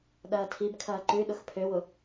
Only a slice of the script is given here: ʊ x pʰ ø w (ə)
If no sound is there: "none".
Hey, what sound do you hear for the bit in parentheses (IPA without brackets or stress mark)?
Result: ʊ